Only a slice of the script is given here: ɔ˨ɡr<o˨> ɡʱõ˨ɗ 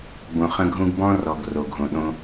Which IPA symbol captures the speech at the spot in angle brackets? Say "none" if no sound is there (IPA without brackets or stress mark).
o˨